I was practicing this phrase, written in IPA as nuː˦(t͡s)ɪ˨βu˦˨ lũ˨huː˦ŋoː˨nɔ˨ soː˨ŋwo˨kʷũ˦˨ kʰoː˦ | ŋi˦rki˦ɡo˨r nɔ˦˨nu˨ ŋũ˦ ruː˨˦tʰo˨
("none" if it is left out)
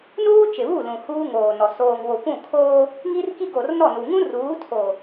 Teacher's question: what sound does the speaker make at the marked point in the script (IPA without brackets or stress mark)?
t͡ʃ